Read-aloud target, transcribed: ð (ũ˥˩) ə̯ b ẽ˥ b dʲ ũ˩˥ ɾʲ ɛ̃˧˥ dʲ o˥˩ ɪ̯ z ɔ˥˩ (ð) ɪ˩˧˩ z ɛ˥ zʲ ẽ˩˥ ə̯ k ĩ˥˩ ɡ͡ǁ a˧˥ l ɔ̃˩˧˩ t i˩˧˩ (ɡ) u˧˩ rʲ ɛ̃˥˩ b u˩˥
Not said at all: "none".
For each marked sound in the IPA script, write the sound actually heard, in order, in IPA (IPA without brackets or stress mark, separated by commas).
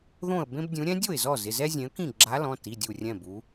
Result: õ˥˩, z, dʲ